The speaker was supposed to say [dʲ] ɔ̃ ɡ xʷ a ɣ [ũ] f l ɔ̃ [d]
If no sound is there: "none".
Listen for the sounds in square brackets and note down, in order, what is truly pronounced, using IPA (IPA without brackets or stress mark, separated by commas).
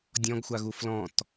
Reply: dʲ, u, t